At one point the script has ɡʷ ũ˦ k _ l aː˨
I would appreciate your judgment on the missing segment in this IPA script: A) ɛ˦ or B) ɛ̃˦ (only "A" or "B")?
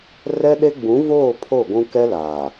A